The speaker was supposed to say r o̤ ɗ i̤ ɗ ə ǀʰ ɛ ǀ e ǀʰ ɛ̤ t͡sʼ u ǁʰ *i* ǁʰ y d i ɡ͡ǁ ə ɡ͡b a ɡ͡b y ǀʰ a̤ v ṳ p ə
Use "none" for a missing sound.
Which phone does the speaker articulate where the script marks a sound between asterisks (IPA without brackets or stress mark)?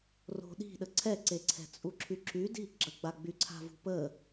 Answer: y